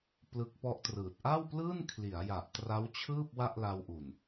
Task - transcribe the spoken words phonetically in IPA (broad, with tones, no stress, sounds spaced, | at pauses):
p l ɯ˦˥ k̚ p ɔ˦˥ ʔ t r ɯː˨˩ t̚ ʔ a˥˩ w p l ɯː˥˩ n kʰ l i˩˦ a̯ j a˨˩ ʔ t r a˦˥ w t͡ɕʰ ɯː˥˩ p̚ w a˥˩ ʔ l a˧ w ʔ u˨˩ n